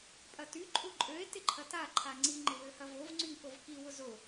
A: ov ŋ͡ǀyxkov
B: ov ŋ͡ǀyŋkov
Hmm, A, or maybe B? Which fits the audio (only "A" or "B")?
B